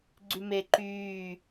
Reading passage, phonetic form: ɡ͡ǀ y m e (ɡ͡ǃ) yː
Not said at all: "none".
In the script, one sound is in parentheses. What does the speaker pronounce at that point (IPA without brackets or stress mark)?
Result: ǃ